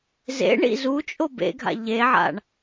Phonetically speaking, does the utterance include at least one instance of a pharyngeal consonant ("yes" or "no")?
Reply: yes